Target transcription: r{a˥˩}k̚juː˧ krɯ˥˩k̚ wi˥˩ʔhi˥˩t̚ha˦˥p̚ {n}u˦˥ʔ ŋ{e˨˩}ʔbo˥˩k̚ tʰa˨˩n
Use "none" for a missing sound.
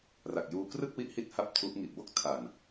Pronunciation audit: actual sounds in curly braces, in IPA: a˨˩, tʰ, i˨˩

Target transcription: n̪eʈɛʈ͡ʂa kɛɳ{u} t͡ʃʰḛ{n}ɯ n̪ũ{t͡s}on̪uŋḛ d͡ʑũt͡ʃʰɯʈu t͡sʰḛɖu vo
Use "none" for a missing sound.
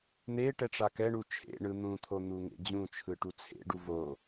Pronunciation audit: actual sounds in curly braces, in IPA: u, ɳ, t̪ʰ

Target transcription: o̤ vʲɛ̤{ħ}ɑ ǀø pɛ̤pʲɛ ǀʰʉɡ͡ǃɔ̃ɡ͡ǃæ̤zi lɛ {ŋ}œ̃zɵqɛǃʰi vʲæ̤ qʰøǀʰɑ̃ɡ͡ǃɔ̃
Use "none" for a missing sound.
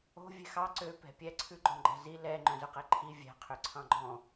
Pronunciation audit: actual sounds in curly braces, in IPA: x, ŋ͡ǃ

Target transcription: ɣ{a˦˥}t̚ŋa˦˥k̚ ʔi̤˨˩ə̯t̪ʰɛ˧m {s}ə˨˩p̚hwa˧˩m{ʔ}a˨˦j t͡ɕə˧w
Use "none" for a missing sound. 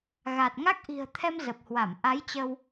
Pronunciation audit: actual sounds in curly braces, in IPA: a˨˩, z, ʔ

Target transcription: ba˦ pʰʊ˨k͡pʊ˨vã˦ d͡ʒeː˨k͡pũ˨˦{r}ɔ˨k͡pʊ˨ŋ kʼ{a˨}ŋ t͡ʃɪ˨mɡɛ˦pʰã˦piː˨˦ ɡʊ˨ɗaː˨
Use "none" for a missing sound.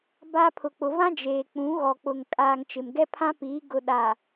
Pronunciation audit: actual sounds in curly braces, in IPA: ɣ, aː˨

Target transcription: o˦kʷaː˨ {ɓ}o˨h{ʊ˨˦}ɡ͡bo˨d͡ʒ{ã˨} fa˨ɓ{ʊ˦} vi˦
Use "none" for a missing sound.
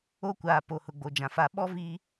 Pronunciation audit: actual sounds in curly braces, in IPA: p, ʊ˨, ã˨, ɔ˦

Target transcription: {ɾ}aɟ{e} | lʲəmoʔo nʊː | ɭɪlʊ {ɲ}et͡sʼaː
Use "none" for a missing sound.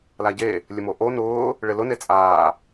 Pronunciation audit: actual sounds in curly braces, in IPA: l, e, n

